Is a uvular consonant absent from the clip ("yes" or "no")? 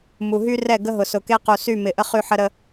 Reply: no